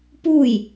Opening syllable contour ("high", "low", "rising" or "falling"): falling